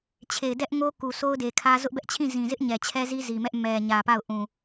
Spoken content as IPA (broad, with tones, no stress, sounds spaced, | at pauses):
t͡ɕʰ e˨ ɪ̯ d ɛ˦ ʔ ŋ o˦ k u˨ s o˦ ʊ̯ d e˨ kʰ ä˦ z ʊ˦ ʔ b ɛ˦ ʔ t͡ɕʰ ĩ˦˨ z ĩ˨ z ɪ˦ ʔ ɲ ɛ˨ t͡ɕʰ ɛ˦ z i˦ z i˨ m ɛ˦ ʔ m ɛ˨ ɲ ä˨ p a˦˨ ʊ̯ ʔ ũ˨